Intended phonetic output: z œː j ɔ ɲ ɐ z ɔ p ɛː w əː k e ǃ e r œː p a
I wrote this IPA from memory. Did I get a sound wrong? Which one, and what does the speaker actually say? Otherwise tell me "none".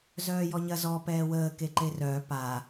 none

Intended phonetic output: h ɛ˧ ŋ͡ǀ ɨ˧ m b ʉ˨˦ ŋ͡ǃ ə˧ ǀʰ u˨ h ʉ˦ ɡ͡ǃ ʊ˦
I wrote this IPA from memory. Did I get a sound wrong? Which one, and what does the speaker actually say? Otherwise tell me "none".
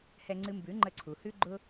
none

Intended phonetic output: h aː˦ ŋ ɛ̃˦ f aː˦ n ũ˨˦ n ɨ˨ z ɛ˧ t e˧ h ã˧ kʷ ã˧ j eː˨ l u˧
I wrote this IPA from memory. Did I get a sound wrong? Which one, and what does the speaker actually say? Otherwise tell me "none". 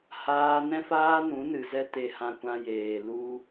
ŋ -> n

